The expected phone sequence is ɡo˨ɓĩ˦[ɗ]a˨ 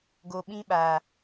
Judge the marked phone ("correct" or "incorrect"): incorrect